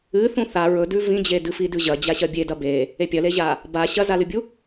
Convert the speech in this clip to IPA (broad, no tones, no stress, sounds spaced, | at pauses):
ɨ θ ũ θ a ɹ ɵ d ʉ v ĩ d͡ʑ e d ɨ f i d ʉ ʑ ɐ d͡ʑ a ɕ ɐ bʲ e d ɐ b e | e pʲ ɐ l e ʑ a | b a ɕ ɐ z a l ɨ bʲ u